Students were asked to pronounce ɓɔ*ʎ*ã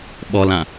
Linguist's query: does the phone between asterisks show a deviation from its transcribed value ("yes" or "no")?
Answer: yes